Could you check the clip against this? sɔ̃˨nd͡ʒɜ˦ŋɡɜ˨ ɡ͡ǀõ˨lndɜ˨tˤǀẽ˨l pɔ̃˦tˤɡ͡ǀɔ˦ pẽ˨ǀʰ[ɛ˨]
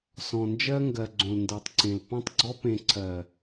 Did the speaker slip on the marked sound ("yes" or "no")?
yes